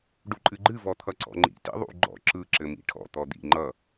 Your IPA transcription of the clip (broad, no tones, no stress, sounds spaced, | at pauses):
ɖ u ǃʼ ɨ ɡ͡ǃ ɨ v ɔ t̪ʰ ʌ ǀ ɔ̰ ŋ͡ǃ ḭ t ḭ ðˤ ṵ ɡ͡ǃ ɔ̰ ǁ ɯ ǁ ɘ m ḭ ʈʰ ɔ̰ t̪ ɔ d̪ ḭ ŋ͡ǃ ʌ